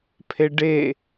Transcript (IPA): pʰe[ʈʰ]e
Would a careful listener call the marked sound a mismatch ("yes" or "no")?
yes